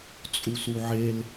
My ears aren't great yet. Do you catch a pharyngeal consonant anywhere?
yes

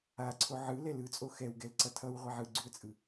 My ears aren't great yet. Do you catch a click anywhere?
yes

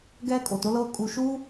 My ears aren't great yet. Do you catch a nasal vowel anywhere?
no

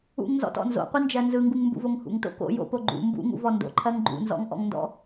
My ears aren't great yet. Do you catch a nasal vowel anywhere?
no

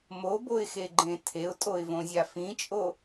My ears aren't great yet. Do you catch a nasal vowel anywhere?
yes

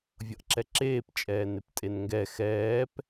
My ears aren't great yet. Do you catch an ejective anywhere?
yes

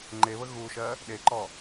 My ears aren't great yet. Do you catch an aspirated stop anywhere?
no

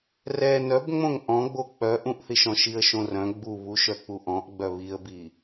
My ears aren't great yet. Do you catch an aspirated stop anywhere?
no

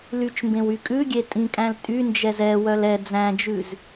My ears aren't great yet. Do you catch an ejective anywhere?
yes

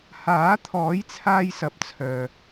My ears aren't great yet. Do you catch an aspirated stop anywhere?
yes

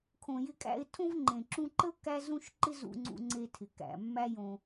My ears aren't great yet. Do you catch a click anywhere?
yes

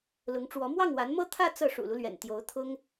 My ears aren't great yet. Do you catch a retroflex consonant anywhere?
yes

